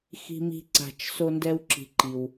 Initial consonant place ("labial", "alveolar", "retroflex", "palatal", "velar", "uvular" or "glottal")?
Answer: velar